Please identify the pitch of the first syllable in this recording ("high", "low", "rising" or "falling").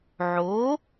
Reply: rising